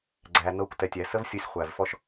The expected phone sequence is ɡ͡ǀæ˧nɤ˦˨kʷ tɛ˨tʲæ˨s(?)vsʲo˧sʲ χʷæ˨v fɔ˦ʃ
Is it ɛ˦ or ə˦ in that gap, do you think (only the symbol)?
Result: ə˦